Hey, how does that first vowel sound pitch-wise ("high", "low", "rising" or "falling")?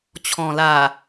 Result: low